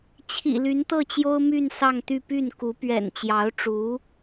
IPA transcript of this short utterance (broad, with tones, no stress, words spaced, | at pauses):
t͡ɕʰḭ˨˩ly˧˥nt̪ɤ˥˩t͡ɕjo˥ʊ̯ my˥˧n sɑ˥˧ŋt̪y˥˧ py˥˩nku˧˥ pɥɛ̰˨˩nt͡ɕjɑ˧˥ʊ̯ʈ͡ʂu˧˥